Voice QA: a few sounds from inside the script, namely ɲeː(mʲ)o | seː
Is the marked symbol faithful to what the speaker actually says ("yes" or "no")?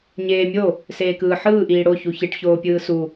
yes